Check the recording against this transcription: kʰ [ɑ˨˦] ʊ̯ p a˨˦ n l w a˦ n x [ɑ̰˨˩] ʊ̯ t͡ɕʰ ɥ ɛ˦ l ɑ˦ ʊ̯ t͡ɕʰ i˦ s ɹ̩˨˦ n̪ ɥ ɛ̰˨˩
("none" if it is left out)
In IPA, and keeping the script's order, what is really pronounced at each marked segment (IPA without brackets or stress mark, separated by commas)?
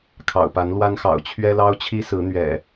ɑ̰˨˩, ɑ̰˨˩